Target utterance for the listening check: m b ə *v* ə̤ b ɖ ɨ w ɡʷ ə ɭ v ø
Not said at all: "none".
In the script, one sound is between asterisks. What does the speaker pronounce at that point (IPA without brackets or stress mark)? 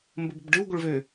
b